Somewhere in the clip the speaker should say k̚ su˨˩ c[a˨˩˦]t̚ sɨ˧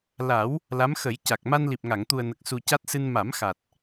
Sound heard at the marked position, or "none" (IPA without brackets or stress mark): a˦˥